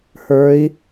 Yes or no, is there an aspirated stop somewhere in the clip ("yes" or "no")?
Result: no